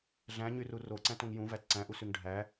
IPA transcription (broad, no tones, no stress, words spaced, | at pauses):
ɮæ̃ɲyru roǀæ̃tõŋ jũvæt ǀæ̃ʔusyŋ ɖʱæ